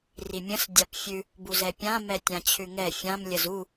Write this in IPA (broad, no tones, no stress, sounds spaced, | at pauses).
r i mʲ ə̃ s dʲ a p fʲ ʉ | b u z ɛ pʲ ã m ɛ tʲ ã t͡ɕʰ ʉ ŋ ɛ fʲ ã m lʲ ə z u